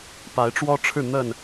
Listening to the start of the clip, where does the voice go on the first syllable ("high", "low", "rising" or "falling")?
rising